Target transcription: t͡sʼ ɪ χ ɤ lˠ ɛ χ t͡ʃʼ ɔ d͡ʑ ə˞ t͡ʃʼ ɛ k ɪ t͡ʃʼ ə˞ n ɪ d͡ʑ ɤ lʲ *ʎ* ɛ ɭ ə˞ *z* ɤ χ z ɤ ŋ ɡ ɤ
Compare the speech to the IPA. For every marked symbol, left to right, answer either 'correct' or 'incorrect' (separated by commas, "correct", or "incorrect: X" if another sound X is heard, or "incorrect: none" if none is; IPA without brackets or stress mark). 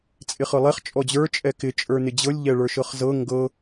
correct, incorrect: ʃ